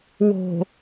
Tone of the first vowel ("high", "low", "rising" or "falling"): low